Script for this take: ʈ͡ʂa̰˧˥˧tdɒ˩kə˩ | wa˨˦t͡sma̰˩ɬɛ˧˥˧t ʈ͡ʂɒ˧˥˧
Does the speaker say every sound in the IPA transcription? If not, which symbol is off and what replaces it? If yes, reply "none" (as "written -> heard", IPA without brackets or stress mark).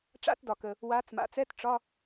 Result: ɬ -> t͡s